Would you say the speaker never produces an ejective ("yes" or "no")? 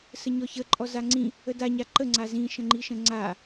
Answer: no